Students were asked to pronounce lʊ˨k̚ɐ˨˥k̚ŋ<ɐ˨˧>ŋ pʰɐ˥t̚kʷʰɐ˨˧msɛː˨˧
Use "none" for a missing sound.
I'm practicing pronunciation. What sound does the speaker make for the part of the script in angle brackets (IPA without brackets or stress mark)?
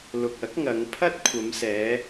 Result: ɐ˨˧